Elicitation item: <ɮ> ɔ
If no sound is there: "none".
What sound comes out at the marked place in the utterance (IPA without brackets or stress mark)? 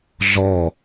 ɮ